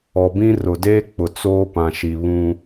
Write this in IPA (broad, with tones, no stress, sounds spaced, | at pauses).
ɔ˨ b ĩ˦ r ʊ˨ d eː˦ k͡p ʊ˨ t͡s oː˦ p ã˨ ʃ i˨ β ũ˦